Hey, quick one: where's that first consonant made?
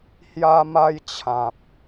throat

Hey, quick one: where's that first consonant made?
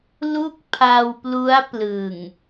tongue tip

